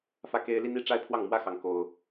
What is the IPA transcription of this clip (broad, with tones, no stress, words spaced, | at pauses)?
fä˥˩ke˥ɪ̯ li˥ni˥˧ ʈ͡ʂa˥˧ɪ̯pʰwɑ˥˩ŋmwä˥xɑ˧˥ŋ ko˥ʊ̯